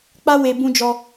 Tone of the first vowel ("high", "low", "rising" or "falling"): high